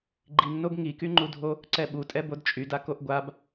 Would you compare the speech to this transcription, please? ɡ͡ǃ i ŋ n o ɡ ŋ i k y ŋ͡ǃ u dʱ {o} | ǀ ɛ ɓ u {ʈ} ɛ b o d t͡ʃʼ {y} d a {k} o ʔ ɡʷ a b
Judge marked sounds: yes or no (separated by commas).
yes, no, yes, yes